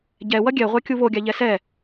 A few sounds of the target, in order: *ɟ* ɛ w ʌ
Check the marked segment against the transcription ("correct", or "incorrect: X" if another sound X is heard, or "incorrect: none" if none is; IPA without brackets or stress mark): correct